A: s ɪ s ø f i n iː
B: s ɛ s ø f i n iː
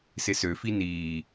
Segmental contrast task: A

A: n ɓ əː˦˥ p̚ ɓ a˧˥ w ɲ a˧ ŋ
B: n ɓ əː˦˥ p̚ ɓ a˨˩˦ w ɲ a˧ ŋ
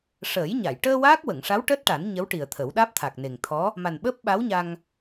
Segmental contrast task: A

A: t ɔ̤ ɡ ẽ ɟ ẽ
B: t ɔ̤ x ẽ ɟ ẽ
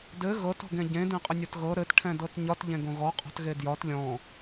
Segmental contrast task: A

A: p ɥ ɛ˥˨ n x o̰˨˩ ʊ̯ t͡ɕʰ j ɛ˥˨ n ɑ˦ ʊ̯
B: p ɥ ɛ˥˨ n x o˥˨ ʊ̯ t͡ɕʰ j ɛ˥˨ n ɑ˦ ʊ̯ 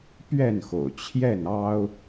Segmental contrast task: A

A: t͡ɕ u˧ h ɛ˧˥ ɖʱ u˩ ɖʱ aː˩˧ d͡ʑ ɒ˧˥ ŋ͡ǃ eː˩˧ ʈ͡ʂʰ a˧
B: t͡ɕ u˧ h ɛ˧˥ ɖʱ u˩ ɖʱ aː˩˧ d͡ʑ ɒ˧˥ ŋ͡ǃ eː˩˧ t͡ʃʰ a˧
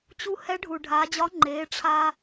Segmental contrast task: A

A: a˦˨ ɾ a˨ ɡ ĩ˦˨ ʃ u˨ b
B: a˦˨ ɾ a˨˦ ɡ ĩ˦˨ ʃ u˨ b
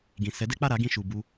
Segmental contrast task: B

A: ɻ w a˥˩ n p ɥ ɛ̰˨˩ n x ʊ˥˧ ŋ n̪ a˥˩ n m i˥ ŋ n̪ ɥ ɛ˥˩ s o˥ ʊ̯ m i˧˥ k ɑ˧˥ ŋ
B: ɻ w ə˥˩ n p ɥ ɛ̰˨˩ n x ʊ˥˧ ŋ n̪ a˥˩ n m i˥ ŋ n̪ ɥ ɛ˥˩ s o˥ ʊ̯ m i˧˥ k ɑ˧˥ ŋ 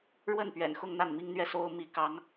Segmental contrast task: B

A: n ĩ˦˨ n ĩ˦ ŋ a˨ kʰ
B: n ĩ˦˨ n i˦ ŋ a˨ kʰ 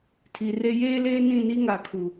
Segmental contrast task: B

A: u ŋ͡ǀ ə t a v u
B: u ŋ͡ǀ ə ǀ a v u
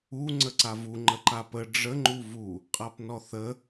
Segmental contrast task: B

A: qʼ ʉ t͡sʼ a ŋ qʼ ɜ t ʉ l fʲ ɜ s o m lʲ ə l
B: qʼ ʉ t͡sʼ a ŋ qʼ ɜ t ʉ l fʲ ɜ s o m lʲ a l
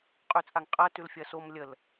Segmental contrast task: A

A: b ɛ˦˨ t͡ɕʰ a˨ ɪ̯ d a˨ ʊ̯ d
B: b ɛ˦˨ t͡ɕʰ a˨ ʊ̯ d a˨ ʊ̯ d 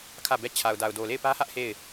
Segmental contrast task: B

